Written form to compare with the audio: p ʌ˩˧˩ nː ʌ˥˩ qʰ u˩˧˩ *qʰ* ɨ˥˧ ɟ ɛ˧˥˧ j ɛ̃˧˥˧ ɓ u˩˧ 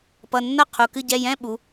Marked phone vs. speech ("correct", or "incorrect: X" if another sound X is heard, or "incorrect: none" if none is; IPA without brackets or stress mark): incorrect: k